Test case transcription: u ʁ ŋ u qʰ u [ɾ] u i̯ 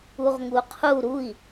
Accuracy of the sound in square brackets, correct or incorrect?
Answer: correct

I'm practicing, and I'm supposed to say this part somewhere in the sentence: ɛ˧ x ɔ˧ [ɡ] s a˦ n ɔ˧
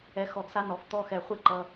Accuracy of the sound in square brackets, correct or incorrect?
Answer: correct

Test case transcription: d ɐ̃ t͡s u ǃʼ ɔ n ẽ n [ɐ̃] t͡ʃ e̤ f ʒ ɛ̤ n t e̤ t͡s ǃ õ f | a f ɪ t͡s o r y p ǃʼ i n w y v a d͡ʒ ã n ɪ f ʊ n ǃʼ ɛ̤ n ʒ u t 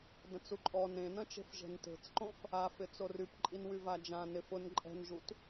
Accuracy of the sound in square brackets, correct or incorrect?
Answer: correct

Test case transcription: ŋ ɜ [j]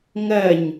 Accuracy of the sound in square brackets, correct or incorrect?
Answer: incorrect: ɲ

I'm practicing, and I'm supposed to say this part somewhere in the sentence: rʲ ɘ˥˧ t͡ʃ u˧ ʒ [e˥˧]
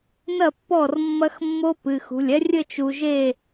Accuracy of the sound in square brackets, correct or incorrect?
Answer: correct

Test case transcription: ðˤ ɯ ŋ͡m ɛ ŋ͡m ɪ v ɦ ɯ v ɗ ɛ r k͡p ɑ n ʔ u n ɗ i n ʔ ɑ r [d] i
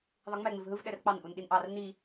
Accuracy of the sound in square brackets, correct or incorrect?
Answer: incorrect: n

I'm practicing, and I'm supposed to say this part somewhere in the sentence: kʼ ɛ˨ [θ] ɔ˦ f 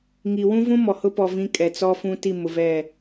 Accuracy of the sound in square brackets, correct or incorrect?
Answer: incorrect: t͡s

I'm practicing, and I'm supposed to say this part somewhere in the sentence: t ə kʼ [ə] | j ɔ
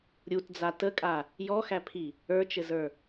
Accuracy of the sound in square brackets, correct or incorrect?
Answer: incorrect: a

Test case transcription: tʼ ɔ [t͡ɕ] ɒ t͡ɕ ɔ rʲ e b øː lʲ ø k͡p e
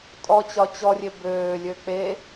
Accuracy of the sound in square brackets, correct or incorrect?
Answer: correct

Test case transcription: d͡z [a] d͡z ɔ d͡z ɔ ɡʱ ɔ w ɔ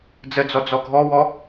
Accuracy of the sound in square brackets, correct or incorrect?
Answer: incorrect: ə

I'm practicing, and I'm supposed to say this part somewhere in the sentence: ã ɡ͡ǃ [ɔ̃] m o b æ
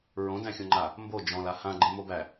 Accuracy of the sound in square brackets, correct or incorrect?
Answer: incorrect: ə̃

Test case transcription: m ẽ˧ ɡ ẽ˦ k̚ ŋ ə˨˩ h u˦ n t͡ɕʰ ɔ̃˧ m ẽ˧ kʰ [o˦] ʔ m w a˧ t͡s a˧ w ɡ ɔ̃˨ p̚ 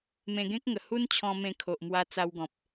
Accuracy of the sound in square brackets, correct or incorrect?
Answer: incorrect: o˨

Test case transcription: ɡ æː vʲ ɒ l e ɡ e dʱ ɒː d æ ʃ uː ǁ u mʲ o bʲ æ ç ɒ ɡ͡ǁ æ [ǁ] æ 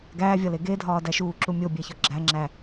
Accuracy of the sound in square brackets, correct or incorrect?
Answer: incorrect: ŋ͡ǁ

